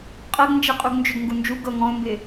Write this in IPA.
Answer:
qʼ ɤ ɡ n d͡ʒ ɛ qʼ u ɡ n d͡ʒ ʏ ɡ ŋ ɡ u n d͡ʒ u ɡ ɤ ŋ ɔ̃ ʊ̯ m b ɪ

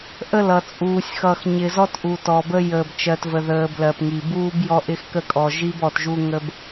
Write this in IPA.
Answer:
ʔ ə˦˨ l ʌ˨ t͡sʼ uː˨ sʲ x ʌ˨ x ɲ ɪ˨ z ɔ˦ t ʔ u˨ t ɔ˨ b ə˦ j əː˨ b t͡ʃ ɜ˨ t v ə˨ ð əː˨ b l ɜ˨ p ŋ i˨ b uː˦ b j ɔ˦ ʔ ɪ˦ x k ə˦ kʼ ɔ˨ ʒ i˦ b ɔ˨ t ʒ u˦ ŋ ə˦ b

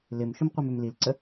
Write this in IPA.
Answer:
l ɪ m ʃ ʊ m qʷ i m ø m l i l ǀ ə

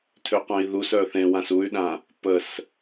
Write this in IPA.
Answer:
tʰ ø q œ̃ i̯ ð u s œ θ ẽ w ã s u y̯ ɗ ã | p ə s

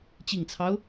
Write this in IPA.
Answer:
t͡ɕ i˨˩ ŋ t͡sʰ ɑ˦ ʊ̯

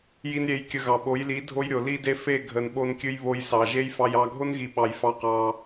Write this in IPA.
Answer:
j i˧ n ɾʲ e˨˦ j kʲ ə˧ ɣ ɑ˨ ɓ o˨˦ j l i˨˦ dʱ o˦ j ɾʲ o˨ l i˦ d e˦ f e˦˨ ɡʱ ə˨ n ɓ o˧ n kʲ ɨ˧ j β o˧ j s ɑ˨ ʒ e˦ j f ɑ˧ j ɑ˧ ɡʱ o˦ n ɣ i˨ ɓ ɑ˨ j f ɑ˧ q ɑ˧

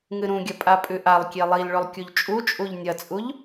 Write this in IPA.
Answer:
ŋ ɨ ɾ ũ ɡʲ ɐ pʼ a pʼ ʉ ʔ a lˠ kʲ e lˠ i l ɭ ɵ lˠ kʲ u ʎ t͡ʃʼ u t͡ʃʼ u ʎ nʲ ɐ t͡sʼ u ʎ

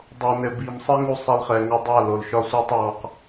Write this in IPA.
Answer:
dˤ o˨ n ɘ˨ b i˨ m sˤ ɘ˦ ŋ u˧ sˤ ɛ˧ l χ ɛ˨ ŋ ɒ˧ dˤ a˦˨ l o˨ l ʃ ɒ˦ sʷ ɛ˦ tˤ w ɔ˧ q

